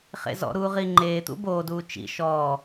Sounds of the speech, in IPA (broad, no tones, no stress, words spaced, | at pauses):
χḛzɔ̰ɾuːʁi ŋ͡ǃeːt̪ṵ boːduː t͡ʃḭ ʃɔː